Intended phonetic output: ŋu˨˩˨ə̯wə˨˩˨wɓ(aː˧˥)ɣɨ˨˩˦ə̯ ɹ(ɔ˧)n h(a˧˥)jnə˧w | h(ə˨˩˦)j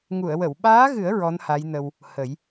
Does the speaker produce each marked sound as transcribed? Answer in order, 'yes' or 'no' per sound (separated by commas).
yes, no, yes, yes